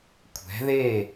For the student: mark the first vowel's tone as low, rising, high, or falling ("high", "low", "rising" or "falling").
rising